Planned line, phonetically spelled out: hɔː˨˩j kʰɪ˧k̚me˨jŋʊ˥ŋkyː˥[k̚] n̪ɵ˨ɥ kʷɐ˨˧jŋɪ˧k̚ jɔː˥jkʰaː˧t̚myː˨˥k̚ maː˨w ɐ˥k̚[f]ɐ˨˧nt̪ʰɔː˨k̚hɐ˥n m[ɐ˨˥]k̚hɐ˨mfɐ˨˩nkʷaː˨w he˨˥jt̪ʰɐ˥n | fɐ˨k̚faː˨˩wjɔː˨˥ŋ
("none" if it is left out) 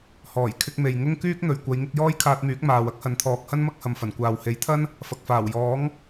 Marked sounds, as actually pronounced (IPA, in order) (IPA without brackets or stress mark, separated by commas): k̚, h, ɐ˥